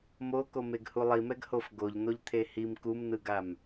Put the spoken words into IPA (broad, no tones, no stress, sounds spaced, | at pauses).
m o k o m e ɡ h u lˠ i m ɛ ɡ h o f ɡ o ʎ n̪ o ʎ t̪ʰ e h i m k u m n̪ ɯ ɡ a m